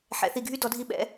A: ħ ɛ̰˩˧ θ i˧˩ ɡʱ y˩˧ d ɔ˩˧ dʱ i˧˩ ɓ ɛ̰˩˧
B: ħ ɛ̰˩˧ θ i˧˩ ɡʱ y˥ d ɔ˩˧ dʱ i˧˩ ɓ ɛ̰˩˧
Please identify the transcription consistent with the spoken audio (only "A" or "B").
B